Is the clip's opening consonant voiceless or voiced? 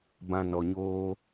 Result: voiced